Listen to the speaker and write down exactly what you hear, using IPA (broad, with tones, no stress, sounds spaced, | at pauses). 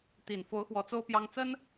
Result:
t̪ i˨˩ n f o˧˥ ʊ̯ x w ɔ˧˥ t͡s o˥ ʊ̯ p j ɑ˥ ŋ t͡s ə˥ n